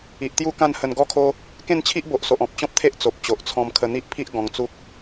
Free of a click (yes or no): yes